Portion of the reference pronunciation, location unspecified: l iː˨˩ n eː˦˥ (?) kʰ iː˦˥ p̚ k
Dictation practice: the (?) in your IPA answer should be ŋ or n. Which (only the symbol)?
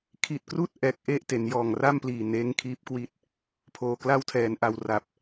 ŋ